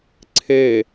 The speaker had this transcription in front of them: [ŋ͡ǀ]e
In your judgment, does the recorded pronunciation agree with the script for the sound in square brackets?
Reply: no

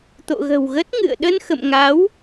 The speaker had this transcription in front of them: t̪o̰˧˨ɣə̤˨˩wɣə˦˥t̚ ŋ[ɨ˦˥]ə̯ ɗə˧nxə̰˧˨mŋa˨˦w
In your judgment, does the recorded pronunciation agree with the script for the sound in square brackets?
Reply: no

